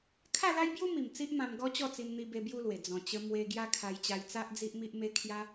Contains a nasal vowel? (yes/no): yes